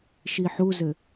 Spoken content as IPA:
ʃ i ħ u z ɘ

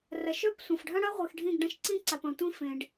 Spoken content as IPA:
r ɐ˨ ʃ œ˦ p sʷ ɐ̃˨ f ɖʱ ɐ̃˦ ɽ ɐ˦ ʁʷ i˨ x ɖʱ ĩ˦˨ ɡ ɖ ã˦ ʃ ǀ ĩ˦ ǀ a˨ p ɐ̃˨ tʷ ĩ˦ f ẽ˨ ɖ

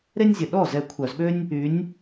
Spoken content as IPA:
ɾ e˥ nʲ zʲ ə˨˩ ɗ ɔ˥˩ z ɛ˥˩ kʷʰ œ˧˩˧ z ɓ ø˥ nʲ | y˨˦ nʲ

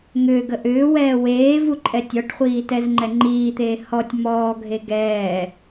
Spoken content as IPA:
ŋ ʏː ɡ ə ʔ ʏː w ɛː w eː v u ǃʼ ɛ tʲ ɔ ʈ χʷ iː t ɛ z ŋ͡ǃ ɛ ŋ͡ǃ iː t̪ eː h ɔ tʲ m ɔː ɡʱ e ɡ ɛː

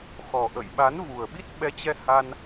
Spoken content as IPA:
x ɔ˨˩ ʔ ə̰˧˨ j ɓ a˨˦ n v u˨˩ ə̯ ɓ i˦˥ t̚ ɓ ɛ˨˦ t͡ɕ ɛ˧ h a˧ n

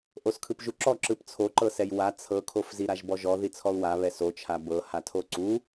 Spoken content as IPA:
ʔ o s kʰ ɯ p ʒ u ǁ ɔ ǁ ɯ p t͡sʰ o ǃ ɤ s ɛ j w a t͡sʰ ɤ kʰ o f z i ɾ a ʒ b ɔ ʒ ɔ ð i t͡sʰ ɔ u̯ w a β ɛ s o t͡ʃʰ a b ɤ h a tʰ o ǀ u

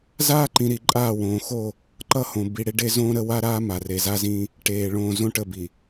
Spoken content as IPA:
z aː˦ ǃ ĩ˨ ɾ i˨ ǃʼ aː˦˨ w õː˨ x o˦˨ | ǃ ʌ˦ h õ˨ b i˨ ɽ e˦ ɖ e˦ z õː˦ ɾ ə˦ w a˦ ɾ aː˦ m a˨ r e˨ z a˦ z ĩ˦ | ʈ eː˨ ɭ õː˨ z õ˦ ʈ ə˦˨ b i˨

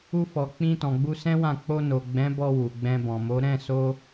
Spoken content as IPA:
u˧ f ɔ˨ k͡p ĩ˧ t ɔ̃˨ ɡ͡b u˧ s ɛ̃˦ w ã˦˨ k͡p o˧ n o˨ ɡ͡b ɛ̃˨˦ b ɔ˧ w u˨ ɡ͡b ɛ̃˧ b ɔ̃˨ m o˨˦ ɾ ɛ̃˦˨ s o˧

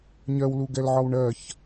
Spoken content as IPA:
ɲ ɜ w l u ɡ ɛ l ʕ ɒ w ɳ ɜ ç

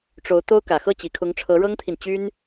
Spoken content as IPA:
ʈ͡ʂ o˧˥ ʊ̯ t̪ o˥ ʊ̯ k ä˨˩ x ɤ˥˩ t͡ɕ i˨˩ kʰ ʊ˧˥ ŋ ʈ͡ʂʰ ɤ˧˥ ɻ ɤ˥ ŋ t̪ʰ i˨ n t͡ɕ y˥ n

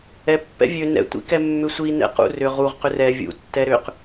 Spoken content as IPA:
ɛ pː ɛ̰ vʲ ø n ɛ̰ tʷ ḭ k ɛ mː ʏ sʷ i n ɛ̰ q ṵ r ʏ ʁ u ʁ q ʏ r ɛ vʲ ṵ tː ɛ ɾ ʏ q

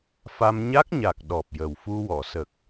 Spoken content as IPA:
f a˧ m ɲ a˦˥ k̚ ɲ a˨˩ k̚ ɗ ɔ˨˩ p̚ j ə˨˩ w f u˧ w ɔ˨˩˨ s ə˨˩ k̚

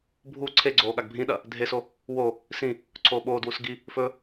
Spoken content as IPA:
bʱ u ǀʰ e ɡ͡ǀ oː ɠ a ɡ bʱ ĩ ɗ ɐ | dʱ e s o | w o | s ĩ | ǀʰ oː ɓ oː d w u s ɡ i | f ɵ

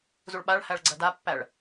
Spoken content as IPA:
z u ɭ ɓ a ɭ h æ ɭ ɡ͡ǀ ɜ d a pː æ ɭ

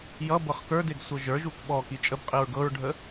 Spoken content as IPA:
j ʌ b ɤ χ k ə˞ d e ɡ sʷ ɤ ʒ ə˞ ʒ u k ɓ ɔ k i t͡ʃʼ ə b qʼ i ɹ ɡ ɤ ɹ ɖʱ ə

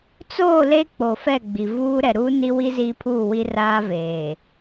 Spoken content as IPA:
t͡s oː˦˨ l e˦ k͡p o˨ f ɛ˦˨ ɡ͡b i˨ v uː˦ ɾ ɛ˨ ɾ uː˦ n i˦ w i˦ z iː˦ pʰ uː˦˨ w i˦ r aː˦ v eː˨

